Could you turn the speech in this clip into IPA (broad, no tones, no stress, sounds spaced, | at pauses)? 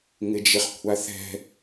ŋ ɪ d͡ʒ ɪ χ kʷʰ a θ ɛ̤